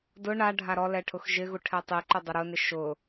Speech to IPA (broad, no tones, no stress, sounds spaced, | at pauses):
d ʊ ɳ a ɖʱ a ɾ ɔ l ɛ ʈʰ ʊ x ʒ ɪ ɣ u ʈʰ ɛ tˤ i ǃ o dˤ ʊ ɾ ʊ n ɪ ʃ ʊ